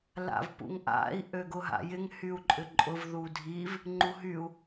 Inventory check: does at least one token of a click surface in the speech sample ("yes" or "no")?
yes